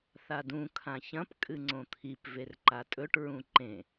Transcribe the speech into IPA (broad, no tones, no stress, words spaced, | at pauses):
θadũ kʰãçɐ̃p kʼɨŋ͡ǀõt̪ʰip verǃatʼɵʈ ɹũǃẽ